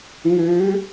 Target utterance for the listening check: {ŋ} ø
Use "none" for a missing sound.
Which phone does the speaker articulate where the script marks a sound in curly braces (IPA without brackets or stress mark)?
ŋ